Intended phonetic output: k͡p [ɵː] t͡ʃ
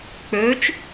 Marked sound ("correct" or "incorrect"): correct